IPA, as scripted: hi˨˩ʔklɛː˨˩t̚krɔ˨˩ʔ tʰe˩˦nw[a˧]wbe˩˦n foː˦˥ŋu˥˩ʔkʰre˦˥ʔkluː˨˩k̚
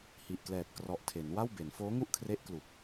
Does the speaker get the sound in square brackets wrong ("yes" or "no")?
yes